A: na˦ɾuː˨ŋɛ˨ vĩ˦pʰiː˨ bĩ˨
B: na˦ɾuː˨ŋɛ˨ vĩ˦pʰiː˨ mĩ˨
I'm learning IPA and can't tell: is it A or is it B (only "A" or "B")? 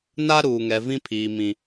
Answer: B